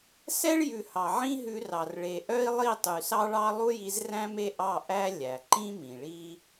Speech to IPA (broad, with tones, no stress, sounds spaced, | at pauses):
s ɛ˦ ɭ j ʉ˨ h ɑ˨ ʕ ĩ˦ ɦ ʉ˧ r ɑ˨ r ɭ e˨ ʔ œ˦ i̯ lˠ i˦˨ tˤ y˨ s ɑ˦ ɭ ɑ˦ lˠ u˦ j i˧ z r æ̃˦ m e˦ ʔ ɑ˦˨ ʔ æ˦ lʲ æ˨ ǃ ĩ˦ m ĩ˨ ɭ i˦